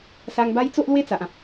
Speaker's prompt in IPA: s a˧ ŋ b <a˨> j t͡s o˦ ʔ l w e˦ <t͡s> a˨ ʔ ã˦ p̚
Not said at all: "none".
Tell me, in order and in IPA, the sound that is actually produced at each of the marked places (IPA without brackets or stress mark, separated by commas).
a˦, t͡s